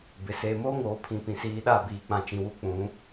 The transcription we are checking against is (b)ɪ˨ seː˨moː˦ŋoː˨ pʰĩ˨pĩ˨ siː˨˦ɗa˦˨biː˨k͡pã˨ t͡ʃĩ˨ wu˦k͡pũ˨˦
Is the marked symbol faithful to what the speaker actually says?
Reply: yes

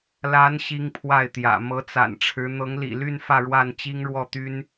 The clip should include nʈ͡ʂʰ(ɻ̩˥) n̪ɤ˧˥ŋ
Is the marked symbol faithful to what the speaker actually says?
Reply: no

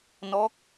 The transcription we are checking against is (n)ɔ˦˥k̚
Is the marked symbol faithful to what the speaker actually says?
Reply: yes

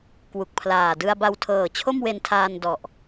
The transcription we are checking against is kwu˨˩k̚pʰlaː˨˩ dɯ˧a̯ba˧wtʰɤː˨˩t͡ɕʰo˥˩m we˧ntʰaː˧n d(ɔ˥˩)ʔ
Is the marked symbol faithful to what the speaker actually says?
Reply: no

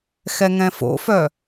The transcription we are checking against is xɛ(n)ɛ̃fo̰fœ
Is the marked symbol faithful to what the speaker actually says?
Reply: no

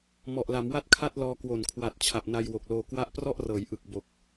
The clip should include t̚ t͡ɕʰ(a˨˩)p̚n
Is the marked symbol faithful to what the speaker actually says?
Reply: yes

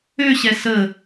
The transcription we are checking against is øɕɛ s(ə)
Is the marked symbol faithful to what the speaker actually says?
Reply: yes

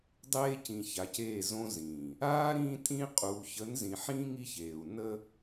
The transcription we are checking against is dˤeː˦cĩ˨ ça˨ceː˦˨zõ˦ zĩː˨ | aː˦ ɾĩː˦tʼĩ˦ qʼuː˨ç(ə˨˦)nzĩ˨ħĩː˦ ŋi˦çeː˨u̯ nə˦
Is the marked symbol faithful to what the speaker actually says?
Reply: yes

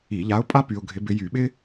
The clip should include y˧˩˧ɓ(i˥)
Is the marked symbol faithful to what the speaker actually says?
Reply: no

